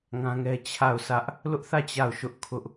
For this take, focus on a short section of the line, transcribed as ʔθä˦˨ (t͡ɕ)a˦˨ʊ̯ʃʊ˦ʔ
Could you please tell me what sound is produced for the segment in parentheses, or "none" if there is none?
t͡ɕ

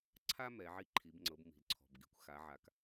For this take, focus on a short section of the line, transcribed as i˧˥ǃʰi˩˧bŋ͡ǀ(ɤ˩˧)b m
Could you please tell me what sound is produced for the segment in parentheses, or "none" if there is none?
ɤ˩˧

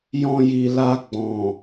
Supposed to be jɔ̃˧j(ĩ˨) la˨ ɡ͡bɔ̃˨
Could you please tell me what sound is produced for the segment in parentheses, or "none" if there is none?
i˨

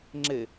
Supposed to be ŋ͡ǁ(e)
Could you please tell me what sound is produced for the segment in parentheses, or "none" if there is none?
e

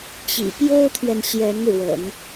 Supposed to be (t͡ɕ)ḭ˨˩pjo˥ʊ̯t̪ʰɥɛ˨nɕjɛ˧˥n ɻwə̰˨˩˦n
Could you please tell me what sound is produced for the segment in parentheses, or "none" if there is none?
t͡ɕ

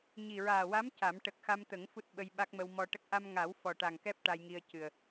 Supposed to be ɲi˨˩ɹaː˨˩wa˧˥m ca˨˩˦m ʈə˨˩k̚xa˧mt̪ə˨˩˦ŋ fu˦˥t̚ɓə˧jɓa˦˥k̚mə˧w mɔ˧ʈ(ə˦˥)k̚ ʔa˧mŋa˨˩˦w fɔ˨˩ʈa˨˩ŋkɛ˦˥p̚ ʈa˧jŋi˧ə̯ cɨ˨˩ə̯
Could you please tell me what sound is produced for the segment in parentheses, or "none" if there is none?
ə˦˥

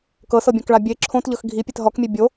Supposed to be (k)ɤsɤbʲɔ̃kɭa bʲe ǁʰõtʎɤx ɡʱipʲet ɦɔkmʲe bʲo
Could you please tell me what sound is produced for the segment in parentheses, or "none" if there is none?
k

